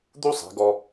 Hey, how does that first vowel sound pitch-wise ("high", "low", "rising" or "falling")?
high